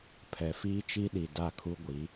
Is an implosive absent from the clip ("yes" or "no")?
no